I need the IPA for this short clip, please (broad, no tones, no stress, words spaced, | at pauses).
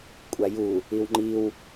kʷʼaju | iwŋ͡ǃiw